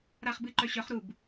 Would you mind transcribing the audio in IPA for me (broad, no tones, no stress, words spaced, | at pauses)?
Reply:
ɾaχbɨǃœɕœχ ɾub